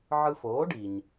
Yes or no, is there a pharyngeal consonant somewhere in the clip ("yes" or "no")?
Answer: yes